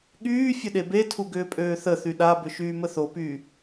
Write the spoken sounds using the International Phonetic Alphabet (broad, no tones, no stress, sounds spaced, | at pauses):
ɠ yː fʲ ə ɗ e b e tʰ u ɡ ʏː pʼ øː θ ə θ y ɗ a b ʏ ʃ yː m ə θ o p yː